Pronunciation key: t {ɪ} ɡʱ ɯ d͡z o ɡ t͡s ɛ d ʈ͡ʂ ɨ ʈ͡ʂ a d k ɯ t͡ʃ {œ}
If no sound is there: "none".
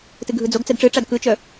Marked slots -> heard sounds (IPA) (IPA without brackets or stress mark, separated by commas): ɨ, œ